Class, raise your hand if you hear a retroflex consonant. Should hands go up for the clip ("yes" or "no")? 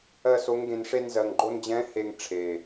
yes